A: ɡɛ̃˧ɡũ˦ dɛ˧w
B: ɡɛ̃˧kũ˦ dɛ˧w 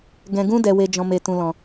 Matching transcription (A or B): A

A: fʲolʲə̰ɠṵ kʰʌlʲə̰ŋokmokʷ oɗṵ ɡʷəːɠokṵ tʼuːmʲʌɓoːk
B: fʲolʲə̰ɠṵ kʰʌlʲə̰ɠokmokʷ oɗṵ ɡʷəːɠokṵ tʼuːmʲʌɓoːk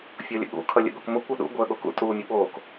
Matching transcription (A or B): B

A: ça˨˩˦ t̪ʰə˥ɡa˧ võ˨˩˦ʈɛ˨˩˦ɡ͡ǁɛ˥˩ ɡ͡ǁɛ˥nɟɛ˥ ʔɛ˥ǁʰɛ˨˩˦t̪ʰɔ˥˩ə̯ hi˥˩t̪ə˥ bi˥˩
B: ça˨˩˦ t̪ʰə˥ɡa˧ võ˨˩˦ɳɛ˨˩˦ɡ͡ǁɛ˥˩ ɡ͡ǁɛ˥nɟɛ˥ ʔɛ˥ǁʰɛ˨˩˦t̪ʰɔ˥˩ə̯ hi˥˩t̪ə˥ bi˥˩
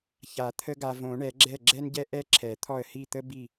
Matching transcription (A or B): B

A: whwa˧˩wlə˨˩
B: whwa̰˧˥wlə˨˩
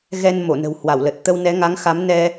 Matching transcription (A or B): A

